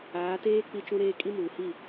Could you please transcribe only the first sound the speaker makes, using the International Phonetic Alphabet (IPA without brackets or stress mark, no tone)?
aː